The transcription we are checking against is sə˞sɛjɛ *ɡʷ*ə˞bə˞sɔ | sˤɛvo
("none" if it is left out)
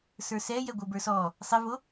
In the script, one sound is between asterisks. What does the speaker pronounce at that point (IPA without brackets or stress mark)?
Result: ɡʷ